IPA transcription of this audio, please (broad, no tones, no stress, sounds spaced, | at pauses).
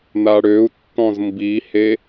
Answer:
n̪ a ɽ ø u̯ tː ɔ̃ z m b i h e